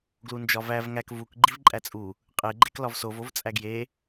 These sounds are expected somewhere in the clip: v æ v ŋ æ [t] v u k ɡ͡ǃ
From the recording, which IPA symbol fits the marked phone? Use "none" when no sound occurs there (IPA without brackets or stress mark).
k